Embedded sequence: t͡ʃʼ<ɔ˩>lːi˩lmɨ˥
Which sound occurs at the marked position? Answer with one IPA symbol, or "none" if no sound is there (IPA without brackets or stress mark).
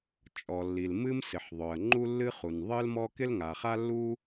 ɔ˩